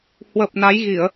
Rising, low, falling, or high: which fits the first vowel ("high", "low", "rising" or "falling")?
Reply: low